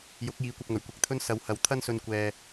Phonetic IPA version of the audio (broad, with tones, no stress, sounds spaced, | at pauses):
j ʊ˨˥ k̚ j iː˨˧ kʷ ɐ˧ p̚ ŋ ɵ˨˩ ɥ kʷ ɪ˨˥ k̚ t̪ʰ ɵ˥ n s ɐ˨˧ w h ɐ˨ w t̪ʰ ɐ˥ n s ɵ˧ n kʷ ɛː˧